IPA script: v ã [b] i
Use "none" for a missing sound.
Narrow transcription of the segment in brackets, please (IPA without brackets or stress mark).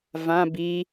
b